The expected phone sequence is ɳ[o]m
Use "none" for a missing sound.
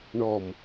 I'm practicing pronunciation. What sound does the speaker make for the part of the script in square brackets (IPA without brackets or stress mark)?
ɔ